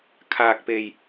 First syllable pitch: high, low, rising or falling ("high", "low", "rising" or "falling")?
low